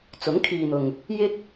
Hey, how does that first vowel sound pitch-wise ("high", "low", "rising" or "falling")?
rising